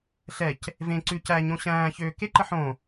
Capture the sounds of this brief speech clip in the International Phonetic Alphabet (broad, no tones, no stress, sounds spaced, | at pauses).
ɬ ɛ c | v ẽ ǀ ʉ c æ ɲ õ ɕ æ̃ː ç øː k e ǃ ə ħ õ